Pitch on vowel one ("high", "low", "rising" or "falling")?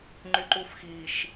high